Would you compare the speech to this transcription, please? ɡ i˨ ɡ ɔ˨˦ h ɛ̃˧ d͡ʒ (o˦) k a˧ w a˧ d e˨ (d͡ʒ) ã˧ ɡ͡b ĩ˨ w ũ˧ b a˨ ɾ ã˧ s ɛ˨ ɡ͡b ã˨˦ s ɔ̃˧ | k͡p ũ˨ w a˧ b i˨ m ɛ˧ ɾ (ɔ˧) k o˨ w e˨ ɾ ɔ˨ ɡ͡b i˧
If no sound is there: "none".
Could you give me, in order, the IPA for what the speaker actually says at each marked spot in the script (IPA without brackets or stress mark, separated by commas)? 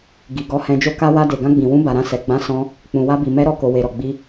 o˦, ɡ, ɔ˨